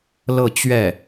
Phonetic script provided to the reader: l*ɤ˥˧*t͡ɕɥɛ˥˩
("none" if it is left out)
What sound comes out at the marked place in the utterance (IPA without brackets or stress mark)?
ɤ˥˧